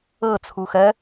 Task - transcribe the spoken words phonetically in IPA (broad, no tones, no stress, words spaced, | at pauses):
ɤ t͡sʰuxɜ